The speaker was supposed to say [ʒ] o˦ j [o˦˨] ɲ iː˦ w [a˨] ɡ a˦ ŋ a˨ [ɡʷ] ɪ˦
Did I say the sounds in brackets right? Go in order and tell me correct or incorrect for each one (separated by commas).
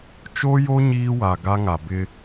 incorrect, incorrect, correct, incorrect